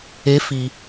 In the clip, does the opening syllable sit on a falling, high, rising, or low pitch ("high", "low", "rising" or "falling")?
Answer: rising